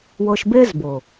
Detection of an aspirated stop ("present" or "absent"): absent